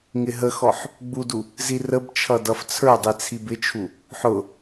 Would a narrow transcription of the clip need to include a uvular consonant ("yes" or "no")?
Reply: no